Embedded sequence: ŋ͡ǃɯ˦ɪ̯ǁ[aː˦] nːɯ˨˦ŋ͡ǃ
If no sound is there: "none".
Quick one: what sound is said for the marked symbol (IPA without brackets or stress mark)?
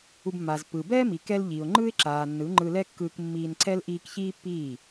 aː˨